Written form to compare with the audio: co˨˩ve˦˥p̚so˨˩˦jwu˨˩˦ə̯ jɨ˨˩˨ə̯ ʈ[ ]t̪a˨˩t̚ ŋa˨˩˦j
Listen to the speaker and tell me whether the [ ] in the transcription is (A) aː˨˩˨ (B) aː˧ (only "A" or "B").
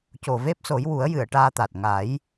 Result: B